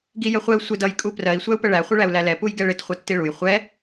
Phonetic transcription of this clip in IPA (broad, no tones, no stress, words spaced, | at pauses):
ɡijəχʷɛu̯ sʷɪd ʌj kʼuprɜi̯ sʷæu̯pəɭæ χʷɪɭæu̯lælɛ pujɡɛɭɪt χʷʌtːiɭuj χʷɛ